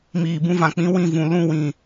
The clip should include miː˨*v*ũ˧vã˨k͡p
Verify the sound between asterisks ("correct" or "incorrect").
incorrect